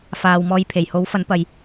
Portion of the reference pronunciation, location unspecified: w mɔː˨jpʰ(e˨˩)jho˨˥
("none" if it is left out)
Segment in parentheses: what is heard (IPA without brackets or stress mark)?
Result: e˨˩